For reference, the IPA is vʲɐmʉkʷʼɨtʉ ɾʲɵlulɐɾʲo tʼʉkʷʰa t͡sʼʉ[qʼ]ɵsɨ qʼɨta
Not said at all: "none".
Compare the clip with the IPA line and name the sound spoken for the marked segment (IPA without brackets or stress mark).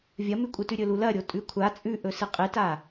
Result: ʔ